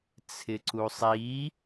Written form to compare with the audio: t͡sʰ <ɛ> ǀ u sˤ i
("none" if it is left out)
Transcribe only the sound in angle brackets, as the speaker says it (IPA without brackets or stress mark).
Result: ɪ